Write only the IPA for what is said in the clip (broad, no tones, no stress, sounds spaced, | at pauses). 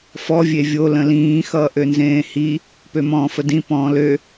f ɔ vʲ e vʲ o l ə̃ l ĩː x ʌː ʔ ø n z ẽː h i | p ø m ɔ̃ː f ə d ĩ p ɔ̃ː l ø